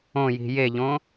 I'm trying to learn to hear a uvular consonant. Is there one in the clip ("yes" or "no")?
no